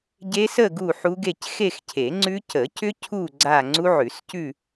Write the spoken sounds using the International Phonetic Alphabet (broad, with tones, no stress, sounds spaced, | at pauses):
ɟ e˦˥ s ə˥˧ ɡ u˥˧ ħ u˦˥ ɡ e˥˧ c x e˥˧ x cʰ e˨˩˦ ŋ͡ǀ ʉ˦˥ c ə˨˩˦ c ʏ˦˥ cʰ u˥˧ ɡ͡ǀ a˥˧ ŋ͡ǀ u˦˥ ʕ ʉ˨˩˦ s c ʉ˥˧